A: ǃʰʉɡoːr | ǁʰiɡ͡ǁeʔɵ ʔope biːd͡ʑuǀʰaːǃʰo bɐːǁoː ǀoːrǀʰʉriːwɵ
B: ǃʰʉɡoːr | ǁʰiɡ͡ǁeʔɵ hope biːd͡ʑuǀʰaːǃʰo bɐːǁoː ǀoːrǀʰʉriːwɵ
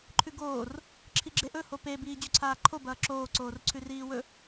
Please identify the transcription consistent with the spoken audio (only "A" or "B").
B